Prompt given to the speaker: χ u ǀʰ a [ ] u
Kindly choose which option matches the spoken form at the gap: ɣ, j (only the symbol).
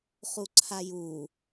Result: j